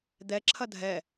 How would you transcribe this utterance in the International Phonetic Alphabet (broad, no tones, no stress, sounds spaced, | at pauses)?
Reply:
d̪ ɛ ǁʰ ɐ dʱ ɛ